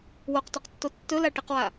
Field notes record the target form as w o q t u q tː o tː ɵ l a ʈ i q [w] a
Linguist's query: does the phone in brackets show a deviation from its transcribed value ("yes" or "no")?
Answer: no